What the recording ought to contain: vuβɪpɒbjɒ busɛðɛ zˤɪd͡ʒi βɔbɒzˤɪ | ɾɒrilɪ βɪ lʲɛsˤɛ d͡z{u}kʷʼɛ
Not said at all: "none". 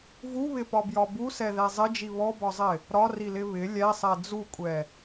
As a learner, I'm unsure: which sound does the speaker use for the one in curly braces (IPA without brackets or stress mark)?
u